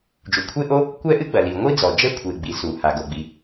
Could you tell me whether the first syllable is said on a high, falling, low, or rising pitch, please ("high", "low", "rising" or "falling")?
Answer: low